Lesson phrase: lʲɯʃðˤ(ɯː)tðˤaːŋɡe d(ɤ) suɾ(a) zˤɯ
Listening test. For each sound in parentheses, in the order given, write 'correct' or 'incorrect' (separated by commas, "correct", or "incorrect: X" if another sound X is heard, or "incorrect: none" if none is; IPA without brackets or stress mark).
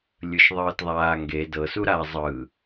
correct, correct, correct